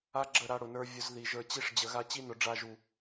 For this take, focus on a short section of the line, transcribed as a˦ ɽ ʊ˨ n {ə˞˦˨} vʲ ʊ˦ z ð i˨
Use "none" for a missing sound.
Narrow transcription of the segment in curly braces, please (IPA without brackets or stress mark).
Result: ə˞˦